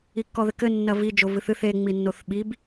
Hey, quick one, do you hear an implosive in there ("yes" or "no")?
yes